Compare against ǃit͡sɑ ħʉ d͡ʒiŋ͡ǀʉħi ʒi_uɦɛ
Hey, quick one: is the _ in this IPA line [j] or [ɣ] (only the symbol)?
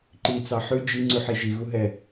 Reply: ɣ